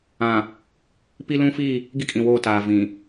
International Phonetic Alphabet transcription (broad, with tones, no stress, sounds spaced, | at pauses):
ã˨ | p i˦ l ũ˦ f iː˦˨ | ɡ i˦ kʼ ĩ˨ w oː˦˨ t aː˨ v ĩ˨